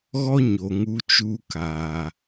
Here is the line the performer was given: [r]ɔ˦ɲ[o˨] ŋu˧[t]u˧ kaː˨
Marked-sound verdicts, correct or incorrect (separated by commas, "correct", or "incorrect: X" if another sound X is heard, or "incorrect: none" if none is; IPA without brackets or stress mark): incorrect: ɣ, correct, incorrect: t͡ʃ